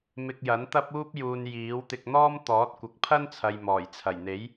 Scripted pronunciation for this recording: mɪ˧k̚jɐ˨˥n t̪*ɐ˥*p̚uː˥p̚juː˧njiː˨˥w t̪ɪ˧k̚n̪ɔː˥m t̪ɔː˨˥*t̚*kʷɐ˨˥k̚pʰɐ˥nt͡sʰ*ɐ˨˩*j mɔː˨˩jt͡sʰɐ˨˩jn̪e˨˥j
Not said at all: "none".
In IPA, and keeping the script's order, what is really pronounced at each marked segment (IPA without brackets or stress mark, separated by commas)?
ɐ˥, t̚, ɐ˨